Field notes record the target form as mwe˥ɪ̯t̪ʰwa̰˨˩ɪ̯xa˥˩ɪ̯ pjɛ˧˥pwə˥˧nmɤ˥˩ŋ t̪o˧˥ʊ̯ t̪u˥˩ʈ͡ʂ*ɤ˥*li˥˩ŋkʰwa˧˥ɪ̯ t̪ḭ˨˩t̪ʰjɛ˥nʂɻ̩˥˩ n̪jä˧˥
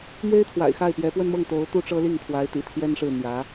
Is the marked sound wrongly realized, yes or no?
no